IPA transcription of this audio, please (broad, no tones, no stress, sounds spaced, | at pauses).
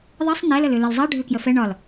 ðˤ i sˤ n ɛ l ə l ʏ l ə l zˤ ɛ ɖʱ ʏ k j ə f ɛ ɳ ɒ l